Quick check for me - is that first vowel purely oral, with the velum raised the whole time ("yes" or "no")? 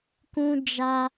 no